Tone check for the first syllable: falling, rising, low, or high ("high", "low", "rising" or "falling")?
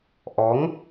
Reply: rising